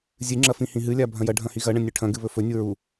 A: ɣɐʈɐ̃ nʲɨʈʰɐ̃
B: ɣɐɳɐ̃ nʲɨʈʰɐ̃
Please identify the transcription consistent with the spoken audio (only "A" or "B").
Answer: B